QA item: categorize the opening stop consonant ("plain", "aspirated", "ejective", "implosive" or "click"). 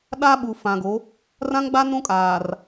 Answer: implosive